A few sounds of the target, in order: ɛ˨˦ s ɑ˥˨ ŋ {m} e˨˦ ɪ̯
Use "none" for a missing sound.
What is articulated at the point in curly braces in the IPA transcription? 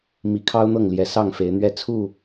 f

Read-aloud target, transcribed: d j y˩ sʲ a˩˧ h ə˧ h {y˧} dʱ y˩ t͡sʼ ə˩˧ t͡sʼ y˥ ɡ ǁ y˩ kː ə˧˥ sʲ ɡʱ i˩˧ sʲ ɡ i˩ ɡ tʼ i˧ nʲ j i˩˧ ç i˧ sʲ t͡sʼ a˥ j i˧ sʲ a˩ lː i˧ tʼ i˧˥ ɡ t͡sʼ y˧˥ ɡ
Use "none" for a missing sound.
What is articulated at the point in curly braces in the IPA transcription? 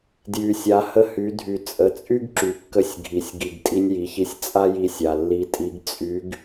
y˩˧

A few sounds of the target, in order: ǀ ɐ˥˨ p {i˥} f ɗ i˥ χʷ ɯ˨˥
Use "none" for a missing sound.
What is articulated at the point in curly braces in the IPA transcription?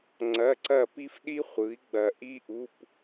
i˥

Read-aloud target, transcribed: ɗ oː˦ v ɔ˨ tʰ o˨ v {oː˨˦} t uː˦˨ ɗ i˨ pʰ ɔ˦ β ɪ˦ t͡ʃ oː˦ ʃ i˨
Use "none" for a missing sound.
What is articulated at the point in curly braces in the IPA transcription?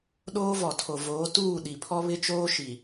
oː˨˦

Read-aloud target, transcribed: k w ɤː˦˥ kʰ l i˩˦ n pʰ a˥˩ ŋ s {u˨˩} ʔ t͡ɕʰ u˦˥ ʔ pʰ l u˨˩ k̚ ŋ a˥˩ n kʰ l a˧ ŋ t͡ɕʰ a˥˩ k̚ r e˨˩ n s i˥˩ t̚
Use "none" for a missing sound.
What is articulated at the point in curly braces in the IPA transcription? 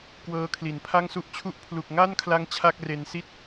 u˦˥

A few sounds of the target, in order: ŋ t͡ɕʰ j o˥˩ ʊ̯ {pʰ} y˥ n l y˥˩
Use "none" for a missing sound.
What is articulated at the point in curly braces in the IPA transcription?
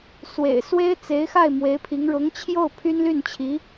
pʰ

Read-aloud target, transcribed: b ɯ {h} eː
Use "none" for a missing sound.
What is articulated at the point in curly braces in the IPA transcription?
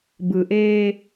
ʔ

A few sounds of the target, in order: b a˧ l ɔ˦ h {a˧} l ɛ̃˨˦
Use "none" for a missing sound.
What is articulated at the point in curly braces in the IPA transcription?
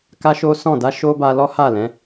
a˦˨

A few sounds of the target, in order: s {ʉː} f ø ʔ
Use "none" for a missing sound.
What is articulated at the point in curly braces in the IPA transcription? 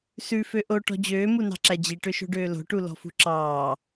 ʉ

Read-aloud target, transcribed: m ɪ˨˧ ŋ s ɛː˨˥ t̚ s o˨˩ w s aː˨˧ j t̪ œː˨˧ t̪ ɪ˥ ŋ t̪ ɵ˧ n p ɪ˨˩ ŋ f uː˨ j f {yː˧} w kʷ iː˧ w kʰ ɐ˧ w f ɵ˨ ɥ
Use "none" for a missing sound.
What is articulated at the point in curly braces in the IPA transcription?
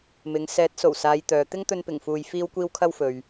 iː˧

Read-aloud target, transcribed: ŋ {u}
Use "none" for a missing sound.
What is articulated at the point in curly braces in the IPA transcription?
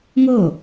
o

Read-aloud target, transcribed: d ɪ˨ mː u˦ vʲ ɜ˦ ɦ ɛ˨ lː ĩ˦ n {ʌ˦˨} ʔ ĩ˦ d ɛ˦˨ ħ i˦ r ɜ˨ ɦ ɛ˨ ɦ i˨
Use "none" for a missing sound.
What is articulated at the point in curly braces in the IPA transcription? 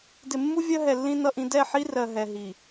ʌ˦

